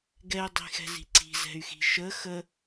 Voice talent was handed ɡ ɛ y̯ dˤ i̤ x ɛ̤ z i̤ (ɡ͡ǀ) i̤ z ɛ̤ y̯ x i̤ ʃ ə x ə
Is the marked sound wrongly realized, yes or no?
yes